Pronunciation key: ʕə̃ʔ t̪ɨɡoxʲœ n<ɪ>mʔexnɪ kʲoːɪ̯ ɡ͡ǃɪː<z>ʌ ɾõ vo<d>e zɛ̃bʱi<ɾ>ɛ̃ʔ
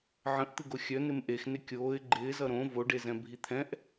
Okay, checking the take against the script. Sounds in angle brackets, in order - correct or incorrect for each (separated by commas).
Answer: correct, correct, incorrect, incorrect